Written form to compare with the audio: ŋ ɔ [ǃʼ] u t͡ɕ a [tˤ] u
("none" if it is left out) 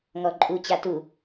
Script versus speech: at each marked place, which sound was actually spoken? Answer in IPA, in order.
ǃʼ, t

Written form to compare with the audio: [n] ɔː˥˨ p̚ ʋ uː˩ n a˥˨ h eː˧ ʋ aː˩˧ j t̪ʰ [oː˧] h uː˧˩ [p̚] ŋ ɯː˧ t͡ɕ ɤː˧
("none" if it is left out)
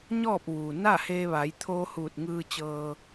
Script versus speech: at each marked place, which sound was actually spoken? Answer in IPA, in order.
ɲ, oː˧, t̚

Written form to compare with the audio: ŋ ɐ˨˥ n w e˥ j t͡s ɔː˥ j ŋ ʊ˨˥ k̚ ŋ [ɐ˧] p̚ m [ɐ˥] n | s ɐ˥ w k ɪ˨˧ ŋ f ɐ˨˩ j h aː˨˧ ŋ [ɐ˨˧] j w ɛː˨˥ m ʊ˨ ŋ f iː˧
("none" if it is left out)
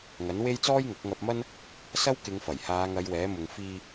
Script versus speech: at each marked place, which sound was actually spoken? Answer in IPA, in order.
ɐ˧, ɐ˥, ɐ˨˧

